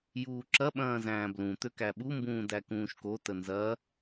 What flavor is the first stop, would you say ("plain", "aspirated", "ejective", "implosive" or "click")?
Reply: click